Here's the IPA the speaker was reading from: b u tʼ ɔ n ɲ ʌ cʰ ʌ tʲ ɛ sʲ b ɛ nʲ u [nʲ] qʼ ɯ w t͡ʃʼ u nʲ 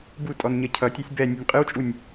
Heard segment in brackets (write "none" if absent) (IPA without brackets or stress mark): nʲ